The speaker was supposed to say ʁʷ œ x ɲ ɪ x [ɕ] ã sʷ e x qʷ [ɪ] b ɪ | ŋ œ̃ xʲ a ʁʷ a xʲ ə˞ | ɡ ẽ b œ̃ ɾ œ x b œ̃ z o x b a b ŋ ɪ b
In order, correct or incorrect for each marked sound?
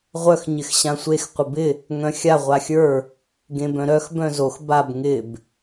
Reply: correct, correct

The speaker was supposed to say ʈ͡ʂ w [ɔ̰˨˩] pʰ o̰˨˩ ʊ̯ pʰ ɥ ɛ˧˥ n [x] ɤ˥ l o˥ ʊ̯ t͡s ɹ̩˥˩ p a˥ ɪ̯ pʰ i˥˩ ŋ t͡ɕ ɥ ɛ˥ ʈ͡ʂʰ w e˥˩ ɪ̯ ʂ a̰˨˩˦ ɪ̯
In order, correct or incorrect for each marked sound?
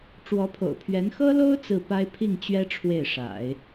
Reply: incorrect, correct

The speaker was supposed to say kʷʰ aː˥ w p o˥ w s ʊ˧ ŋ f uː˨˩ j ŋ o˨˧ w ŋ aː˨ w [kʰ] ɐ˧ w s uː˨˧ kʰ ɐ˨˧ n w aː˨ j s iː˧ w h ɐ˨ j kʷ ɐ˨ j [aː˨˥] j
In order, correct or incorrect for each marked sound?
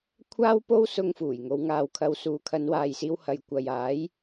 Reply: correct, correct

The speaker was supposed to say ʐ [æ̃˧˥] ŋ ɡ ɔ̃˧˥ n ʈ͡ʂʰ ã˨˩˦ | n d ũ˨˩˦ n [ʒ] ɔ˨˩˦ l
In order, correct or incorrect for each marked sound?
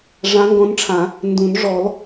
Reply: incorrect, incorrect

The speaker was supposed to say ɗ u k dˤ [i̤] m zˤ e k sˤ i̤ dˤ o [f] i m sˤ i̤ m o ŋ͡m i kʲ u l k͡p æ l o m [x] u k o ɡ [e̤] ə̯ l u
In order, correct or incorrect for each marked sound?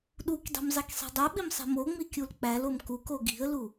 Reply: correct, incorrect, incorrect, incorrect

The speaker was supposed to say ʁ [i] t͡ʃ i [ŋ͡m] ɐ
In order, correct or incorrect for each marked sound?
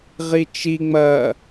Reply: correct, correct

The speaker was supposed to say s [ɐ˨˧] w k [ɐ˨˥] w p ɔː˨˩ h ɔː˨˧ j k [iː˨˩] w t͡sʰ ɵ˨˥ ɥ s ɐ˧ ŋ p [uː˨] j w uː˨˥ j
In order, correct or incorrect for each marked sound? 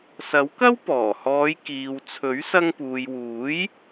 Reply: incorrect, incorrect, incorrect, correct

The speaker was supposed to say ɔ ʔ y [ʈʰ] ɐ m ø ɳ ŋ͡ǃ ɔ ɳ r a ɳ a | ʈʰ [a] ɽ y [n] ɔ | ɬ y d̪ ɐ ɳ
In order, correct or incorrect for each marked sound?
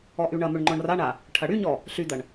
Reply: incorrect, incorrect, incorrect

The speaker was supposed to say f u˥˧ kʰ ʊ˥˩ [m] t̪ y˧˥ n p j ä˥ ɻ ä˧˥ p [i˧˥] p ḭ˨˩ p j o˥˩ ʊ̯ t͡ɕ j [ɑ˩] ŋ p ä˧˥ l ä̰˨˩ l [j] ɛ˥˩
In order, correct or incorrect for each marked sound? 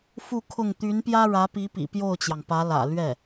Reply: incorrect, correct, correct, incorrect

